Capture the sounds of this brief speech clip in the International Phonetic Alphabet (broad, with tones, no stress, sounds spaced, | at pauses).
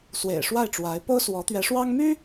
s w ḛ˨˩ ɪ̯ ʂ w a˥˩ ɪ̯ ʈ͡ʂ w a˧˥ ɪ̯ p o˥ ʊ̯ s w ɔ˧˥ t̪ ɥ ɛ˧˥ ʂ w ɑ˥ ŋ m y˥